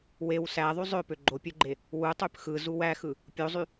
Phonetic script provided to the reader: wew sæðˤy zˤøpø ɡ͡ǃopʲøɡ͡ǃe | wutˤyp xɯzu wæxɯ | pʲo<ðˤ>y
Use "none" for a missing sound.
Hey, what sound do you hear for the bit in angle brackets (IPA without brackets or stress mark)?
zˤ